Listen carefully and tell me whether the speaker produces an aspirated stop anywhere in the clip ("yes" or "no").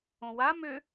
no